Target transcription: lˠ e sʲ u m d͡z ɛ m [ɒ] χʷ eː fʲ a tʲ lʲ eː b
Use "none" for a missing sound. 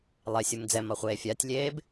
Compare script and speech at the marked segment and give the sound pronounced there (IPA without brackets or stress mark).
ɒ